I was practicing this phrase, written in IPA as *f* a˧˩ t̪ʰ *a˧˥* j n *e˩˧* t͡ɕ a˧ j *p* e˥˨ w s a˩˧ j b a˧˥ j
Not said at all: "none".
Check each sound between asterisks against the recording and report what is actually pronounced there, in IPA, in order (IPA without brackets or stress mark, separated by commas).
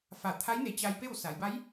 f, a˧˥, e˩˧, p